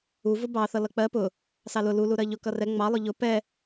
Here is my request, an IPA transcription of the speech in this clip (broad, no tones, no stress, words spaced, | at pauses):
uvʊ bɑθʌ lʌk͡pɜ pʊ | sɑlʊ lu luɾɜʎʊ kʌrɛ ŋ͡mɑlˠʊ ʎʊ pɛ